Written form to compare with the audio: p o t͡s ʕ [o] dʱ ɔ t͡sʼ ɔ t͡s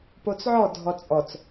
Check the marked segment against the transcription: incorrect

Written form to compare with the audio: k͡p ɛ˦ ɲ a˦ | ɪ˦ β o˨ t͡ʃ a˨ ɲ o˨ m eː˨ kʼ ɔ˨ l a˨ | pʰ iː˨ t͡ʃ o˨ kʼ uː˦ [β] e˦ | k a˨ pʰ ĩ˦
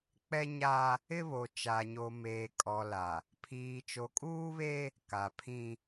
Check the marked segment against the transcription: correct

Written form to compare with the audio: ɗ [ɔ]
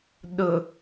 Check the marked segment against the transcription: incorrect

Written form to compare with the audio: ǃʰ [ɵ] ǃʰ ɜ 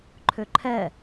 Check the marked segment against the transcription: correct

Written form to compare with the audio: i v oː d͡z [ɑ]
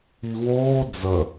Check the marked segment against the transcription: incorrect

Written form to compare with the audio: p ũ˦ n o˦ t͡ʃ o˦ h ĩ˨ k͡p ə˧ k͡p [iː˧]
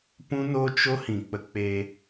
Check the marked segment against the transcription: incorrect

